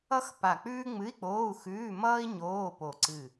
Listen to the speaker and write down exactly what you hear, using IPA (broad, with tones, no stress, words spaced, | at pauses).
ʌ˥xpa˧˩k͡pʉː˥ ŋ͡mɨ˧˥˧i̯k͡poː˧˥˧u̯xʉː˧˥˧mʌː˥i̯ ɲoː˧˥˧po˧˩ ǀɨ˧˩